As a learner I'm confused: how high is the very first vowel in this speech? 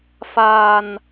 low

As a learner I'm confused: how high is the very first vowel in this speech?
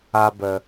low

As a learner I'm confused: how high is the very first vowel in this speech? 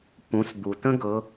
high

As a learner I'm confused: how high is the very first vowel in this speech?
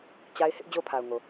low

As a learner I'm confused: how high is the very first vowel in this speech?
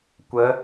mid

